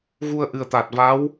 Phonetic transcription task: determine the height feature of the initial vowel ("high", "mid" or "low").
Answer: high